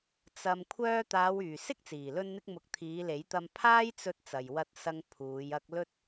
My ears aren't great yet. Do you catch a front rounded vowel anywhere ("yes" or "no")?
yes